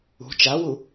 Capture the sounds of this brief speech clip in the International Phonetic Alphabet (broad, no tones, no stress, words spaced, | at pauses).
ṳ t͡ʃawu